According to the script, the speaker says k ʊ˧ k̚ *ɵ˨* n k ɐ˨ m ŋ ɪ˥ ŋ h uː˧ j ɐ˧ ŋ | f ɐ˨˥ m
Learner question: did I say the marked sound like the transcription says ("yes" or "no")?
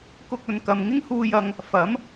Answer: yes